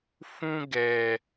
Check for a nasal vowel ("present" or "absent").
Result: present